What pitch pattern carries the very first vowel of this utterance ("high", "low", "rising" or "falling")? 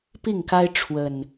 falling